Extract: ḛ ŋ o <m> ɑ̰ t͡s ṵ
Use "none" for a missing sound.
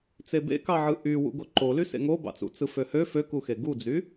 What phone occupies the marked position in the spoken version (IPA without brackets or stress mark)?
b